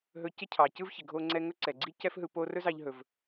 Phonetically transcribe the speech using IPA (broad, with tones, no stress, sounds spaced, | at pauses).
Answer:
ɦ ɵ˧ c ɪ˥ cʰ ɑ˩ c ɯ˥ v ç ɪ˩ ɡʱ o˧ ŋ͡ǀ ɛ˧ ŋ ɵ˥ ǀ ɛ˩ ɡ͡ǀ i˥ c ɛ˥ f ɦ ɯ˧ p o˥ r ɵ˥ z ɑ˧ ʎ ɦ ɵ˩ v